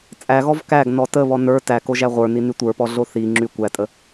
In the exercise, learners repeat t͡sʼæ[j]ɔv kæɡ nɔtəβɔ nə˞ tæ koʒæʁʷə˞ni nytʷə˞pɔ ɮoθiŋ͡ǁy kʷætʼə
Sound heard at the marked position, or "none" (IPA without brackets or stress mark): ɣ